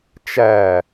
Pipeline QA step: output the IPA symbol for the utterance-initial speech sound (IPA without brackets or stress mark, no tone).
t͡ʃ